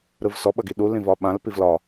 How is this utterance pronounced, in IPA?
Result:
ɾɯvsɔ ɓʌɡiɗu lĩvɒɓãl pivlɒ

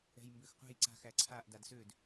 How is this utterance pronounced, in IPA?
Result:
ɛ̤jmbøxqʷɛ̤j ǀa̤x æǀʰaʔ dadsød

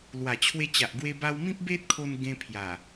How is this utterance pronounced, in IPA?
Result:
lwa˨˩ t͡ɕʰwe˧t͡ɕa˨ʔɡwe˧ ba˧w mĩ˦p̚ be˦t̚kʰo˧n ɡẽ˧pʰja˨˩

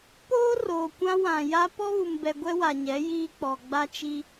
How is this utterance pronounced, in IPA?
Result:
poː˦roː˨kʷã˦wã˨ ja˦ pɔ˦βu˨mbɛ˨ ɡʷɛ˦wa˨ɲɛ˨˦ jiː˦k͡pɔ˨ ɡ͡ba˦t͡ʃi˦

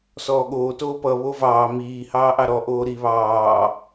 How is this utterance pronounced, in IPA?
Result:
sɔːɠoː toːpʌ βovɑː miːhɑːʔɑ ɾɔʔoː ɾi βɑː

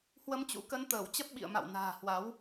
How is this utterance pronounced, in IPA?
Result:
hwə˧mt͡ɕṵ˧˥kə˧n t̪əː˧˩w t͡ɕə˦˥p̚ɓḭ˧˨ə̯ma̰˧˨w na̤ː˨˩hwa˨˦w

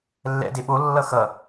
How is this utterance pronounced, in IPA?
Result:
lːɛ̰de ɓolːʌ xʌ

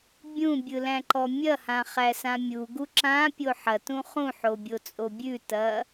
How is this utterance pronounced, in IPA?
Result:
bʲũbʲɯlæ̃ǃɔ mʲɐhãχæsã mʲuɡu ǁãpʲo ħɐtũ χũħobʲot͡sʼo bʲʉtɐ

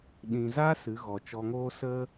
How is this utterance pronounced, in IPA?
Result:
ɗĩ˨za˦ sɨ˨˦ɣɔ˨t͡ʃɔ˧ŋoː˦ sə˧

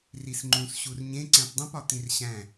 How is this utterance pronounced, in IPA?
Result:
risŋ͡ǃũs ɕurɲẽ ǀæ̃pdˤũpɒ t̪ĩrɕæ̃

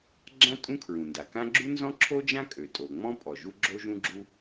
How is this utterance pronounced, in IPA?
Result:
ɡ͡ǁã˥ tʼũ˥kʰɹũ˩nda˩kã˥ ɡ͡ǁu˥nzɔ̃˥ǁʰo˥ d͡ʒã˥kʼø˩tʼo˩ ŋ͡mɔ̃˥pʼɔ˩ ʒu˥ɡ͡ǁo˥ʒũ˥ɡ͡ǁu˥

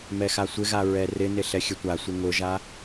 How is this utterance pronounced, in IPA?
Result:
mɛxasʷɪɣa ɹɛrɪnɪ ɬɛxʲətʷasʷɪ ŋʊʒa

